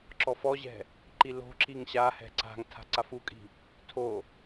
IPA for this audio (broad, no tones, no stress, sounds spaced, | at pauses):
ǁ ɔ f ɔ ʑ ɛ̤ | ǃ i l o̤ ǁ i ŋ ɕ a h ɛ̤ ǀ a̤ ŋ tʰ a̤ ǀ a f u kʼ i̤ | tʰ o